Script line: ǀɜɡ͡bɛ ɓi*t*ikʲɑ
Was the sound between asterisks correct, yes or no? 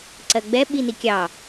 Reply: no